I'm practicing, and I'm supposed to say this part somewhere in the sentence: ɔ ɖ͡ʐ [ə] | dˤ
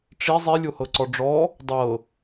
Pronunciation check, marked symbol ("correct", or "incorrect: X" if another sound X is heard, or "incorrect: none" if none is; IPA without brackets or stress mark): incorrect: ɔ